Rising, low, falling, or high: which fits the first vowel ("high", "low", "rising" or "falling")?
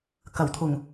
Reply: low